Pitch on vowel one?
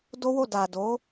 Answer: high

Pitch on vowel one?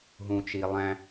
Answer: low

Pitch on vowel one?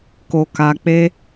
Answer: low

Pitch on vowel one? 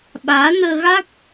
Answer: rising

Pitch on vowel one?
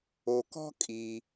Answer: low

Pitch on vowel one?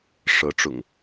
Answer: rising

